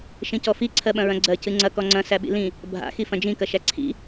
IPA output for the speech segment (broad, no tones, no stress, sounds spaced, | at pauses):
ʃ ĩ c ɔ f i ǀʰ ɜ ɓ ɐ̃ ɹ ɐ̃ ɡ͡ǀ ɜ c ɨ ŋ͡ǀ ɐ k ɔ ŋ͡ǀ ɐ̃ s æ ɓ ḭ l ĩ | bʱ a̰ x i f ɐ̃ d͡ʒ ĩ k ɐ ʃ æ ǀʰ ḭ